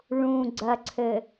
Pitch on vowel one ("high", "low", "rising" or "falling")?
low